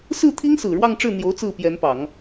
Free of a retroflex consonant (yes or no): no